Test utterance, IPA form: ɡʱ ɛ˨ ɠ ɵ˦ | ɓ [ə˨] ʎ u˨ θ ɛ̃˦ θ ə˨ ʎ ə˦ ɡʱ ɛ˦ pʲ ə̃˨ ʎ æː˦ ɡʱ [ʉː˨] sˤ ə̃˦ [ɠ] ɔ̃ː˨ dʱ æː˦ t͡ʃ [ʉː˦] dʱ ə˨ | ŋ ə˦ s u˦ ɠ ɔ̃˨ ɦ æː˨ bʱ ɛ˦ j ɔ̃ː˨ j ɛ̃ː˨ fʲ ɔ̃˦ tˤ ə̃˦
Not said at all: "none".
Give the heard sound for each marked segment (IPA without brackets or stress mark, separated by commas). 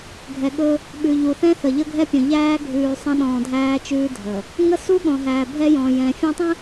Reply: ʉ˨, ʉː˨, ɗ, ʉː˦